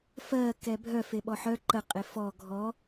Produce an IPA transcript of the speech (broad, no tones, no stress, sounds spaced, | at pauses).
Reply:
f ɜ k ɛ bʱ œ f e ɓ ɔ ħ œ ǃ ə qʼ e f ɔ ɡʱ ɔ